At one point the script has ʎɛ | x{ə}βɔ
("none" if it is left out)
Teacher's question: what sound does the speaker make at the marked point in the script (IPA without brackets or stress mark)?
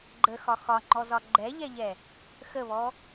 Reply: ə